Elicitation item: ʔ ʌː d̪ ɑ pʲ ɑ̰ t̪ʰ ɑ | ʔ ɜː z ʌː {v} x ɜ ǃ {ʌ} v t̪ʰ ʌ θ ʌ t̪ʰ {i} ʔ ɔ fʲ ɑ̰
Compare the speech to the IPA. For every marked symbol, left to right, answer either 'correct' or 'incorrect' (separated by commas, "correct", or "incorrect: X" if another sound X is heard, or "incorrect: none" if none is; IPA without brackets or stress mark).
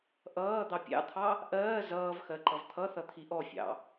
correct, correct, correct